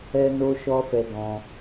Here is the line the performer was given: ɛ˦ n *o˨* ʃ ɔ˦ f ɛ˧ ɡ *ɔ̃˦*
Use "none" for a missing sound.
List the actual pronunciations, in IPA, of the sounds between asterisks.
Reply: o˦, ɔ̃˧

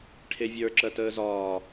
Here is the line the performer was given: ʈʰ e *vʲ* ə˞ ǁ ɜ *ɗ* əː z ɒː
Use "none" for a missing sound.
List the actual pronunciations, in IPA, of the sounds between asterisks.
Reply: vʲ, t

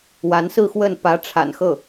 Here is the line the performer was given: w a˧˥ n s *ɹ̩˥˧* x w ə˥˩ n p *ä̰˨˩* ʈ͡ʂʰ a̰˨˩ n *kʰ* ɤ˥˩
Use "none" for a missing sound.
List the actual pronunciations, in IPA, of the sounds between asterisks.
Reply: ɹ̩˥˧, ä˧˥, x

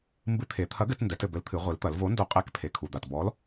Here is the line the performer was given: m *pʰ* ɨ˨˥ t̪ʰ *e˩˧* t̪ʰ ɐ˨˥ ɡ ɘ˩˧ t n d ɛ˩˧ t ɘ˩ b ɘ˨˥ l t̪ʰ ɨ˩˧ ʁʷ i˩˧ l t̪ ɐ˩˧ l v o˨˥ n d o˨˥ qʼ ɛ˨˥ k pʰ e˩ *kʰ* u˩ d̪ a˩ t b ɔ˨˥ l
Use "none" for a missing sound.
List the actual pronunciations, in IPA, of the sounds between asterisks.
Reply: b, e˩˧, kʰ

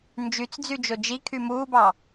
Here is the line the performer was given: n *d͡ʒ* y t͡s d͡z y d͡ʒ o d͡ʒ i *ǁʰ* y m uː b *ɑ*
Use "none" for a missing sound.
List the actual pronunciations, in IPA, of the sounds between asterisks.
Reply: d͡ʒ, kʰ, ɑ

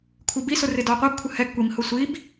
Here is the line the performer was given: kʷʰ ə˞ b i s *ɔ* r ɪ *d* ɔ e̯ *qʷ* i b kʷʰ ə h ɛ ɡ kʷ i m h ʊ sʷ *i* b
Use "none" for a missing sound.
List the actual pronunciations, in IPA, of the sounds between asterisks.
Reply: ʊ, d, qʷ, i

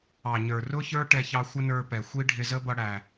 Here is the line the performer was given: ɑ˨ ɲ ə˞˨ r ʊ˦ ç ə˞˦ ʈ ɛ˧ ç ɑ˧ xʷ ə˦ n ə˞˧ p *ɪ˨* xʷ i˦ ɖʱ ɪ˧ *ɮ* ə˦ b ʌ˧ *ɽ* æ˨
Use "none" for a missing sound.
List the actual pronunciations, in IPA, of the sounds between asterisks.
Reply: ɛ˨, z, ɽ

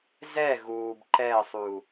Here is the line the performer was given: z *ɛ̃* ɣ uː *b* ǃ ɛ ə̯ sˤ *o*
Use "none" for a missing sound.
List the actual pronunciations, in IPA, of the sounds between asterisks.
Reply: ɛ, b, u

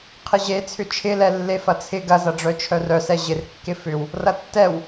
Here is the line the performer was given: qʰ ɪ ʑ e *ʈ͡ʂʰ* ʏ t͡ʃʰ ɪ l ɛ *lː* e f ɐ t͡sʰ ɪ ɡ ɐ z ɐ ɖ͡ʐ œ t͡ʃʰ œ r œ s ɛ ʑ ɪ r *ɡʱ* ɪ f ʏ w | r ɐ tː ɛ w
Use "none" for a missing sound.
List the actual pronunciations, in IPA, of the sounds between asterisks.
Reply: t͡sʰ, lː, kː

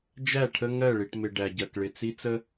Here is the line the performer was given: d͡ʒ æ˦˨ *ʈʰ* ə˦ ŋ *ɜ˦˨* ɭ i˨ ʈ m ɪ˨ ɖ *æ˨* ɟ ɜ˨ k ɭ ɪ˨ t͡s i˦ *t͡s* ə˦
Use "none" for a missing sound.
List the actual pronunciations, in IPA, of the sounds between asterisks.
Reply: ʈʰ, ɜ˦˨, æ˨, t͡s

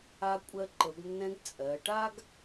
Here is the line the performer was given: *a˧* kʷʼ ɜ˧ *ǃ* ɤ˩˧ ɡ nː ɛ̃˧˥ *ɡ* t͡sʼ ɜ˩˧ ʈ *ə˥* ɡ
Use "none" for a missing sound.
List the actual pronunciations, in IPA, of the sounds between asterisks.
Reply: a˧, ǃ, ɡ, a˥

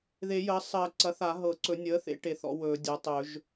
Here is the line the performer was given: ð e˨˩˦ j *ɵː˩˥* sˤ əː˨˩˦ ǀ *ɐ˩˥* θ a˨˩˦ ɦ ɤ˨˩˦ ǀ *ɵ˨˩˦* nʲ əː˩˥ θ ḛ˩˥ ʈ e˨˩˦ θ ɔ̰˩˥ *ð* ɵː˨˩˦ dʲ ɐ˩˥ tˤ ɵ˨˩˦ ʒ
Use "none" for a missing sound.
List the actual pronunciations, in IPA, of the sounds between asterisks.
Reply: əː˩˥, ɐ˩˥, ɵ˨˩˦, w

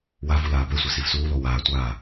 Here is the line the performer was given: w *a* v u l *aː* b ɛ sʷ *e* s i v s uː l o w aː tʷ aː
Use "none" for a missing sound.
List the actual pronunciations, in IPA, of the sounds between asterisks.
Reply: a, aː, e

